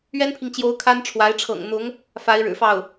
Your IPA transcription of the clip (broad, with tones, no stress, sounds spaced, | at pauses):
ɥ ɛ˥ n pʰ i˨ ŋ t͡ɕ j o˧˥ ʊ̯ kʰ a˥ n ʈ͡ʂʰ w a˧˥ ɪ̯ ʈ͡ʂʰ ɤ̰˨˩ ŋ n̪ ʊ˧˥ ŋ | f a˧˥ ɪ̯ ɻ ɻ̩˨˩ f ɑ˥˩ ʊ̯